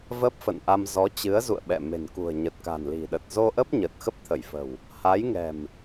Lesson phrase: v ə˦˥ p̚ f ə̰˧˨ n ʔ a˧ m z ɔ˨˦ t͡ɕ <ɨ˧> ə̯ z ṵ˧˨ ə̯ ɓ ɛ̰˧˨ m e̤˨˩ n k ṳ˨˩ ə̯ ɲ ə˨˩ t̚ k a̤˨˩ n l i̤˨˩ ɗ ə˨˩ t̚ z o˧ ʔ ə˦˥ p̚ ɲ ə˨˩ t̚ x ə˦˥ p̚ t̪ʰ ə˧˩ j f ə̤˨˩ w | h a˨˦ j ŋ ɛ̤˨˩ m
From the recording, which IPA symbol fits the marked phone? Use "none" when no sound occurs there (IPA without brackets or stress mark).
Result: ɨ˨˦